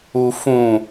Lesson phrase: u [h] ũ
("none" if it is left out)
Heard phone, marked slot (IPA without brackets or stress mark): f